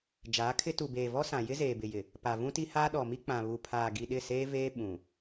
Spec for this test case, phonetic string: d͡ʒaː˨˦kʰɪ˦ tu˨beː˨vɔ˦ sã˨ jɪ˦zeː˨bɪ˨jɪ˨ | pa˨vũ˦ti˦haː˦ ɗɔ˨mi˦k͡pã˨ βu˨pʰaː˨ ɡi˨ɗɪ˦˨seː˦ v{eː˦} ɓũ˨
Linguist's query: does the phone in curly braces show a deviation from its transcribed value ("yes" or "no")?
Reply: no